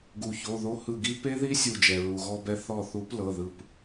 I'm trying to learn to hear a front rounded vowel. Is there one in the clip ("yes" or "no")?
no